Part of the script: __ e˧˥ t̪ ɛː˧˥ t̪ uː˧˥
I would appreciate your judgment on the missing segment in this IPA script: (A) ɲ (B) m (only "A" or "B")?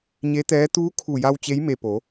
A